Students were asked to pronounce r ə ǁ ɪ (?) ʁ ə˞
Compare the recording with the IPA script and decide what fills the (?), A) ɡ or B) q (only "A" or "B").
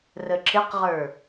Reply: B